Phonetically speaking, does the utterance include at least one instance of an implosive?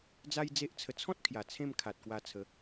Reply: no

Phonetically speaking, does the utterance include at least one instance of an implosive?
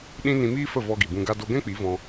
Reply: yes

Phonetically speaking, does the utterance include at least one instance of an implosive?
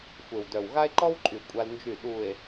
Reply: yes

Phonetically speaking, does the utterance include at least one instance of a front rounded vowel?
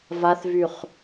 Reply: yes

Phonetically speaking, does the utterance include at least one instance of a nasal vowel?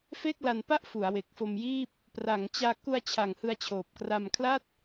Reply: no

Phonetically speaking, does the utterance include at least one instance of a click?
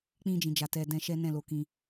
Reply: no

